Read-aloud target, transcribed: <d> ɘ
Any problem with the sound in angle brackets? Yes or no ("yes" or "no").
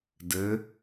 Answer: no